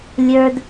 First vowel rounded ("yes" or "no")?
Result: no